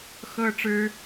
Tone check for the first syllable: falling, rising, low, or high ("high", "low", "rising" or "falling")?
high